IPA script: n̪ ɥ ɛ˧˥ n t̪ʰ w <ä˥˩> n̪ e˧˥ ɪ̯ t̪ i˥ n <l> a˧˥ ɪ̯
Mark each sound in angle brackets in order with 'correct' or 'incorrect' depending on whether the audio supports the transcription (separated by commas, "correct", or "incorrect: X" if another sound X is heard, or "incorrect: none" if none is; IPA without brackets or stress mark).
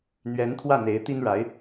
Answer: correct, incorrect: ɻ